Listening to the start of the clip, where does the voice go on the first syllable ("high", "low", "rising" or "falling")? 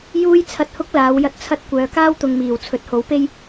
high